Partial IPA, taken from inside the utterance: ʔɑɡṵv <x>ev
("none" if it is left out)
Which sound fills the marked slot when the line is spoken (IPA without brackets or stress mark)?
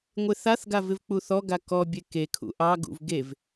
ɡ